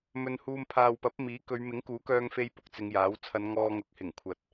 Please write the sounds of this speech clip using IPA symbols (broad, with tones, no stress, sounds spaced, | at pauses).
m ɵ˧ n h uː˧ m pʰ aː˨ w p ɐ˨˥ p̚ m iː˨˥ k ɵ˨˧ ɥ m ɪ˨˥ ŋ k uː˨˥ k œː˧ ŋ f e˧ j p ʊ˨˥ k̚ t͡s ɪ˨˧ ŋ j aː˨˥ w t͡sʰ ɐ˨˧ n ŋ ɔː˧ ŋ ʊ˨˥ k̚ h ɪ˨˩ ŋ kʷʰ ɐ˨ t̚